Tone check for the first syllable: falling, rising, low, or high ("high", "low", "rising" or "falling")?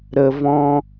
low